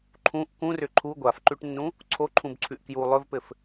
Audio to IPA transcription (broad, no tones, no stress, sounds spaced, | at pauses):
ǃʰ ũ ʔ k ũ r ʏ ǃʰ u ɡʷ a f ǃ ʉ ʈ nː ũ | ǀʰ o ǃʰ ũ b ǀʰ ʉ ʔ k j u lˠ ɵ v p ɘ f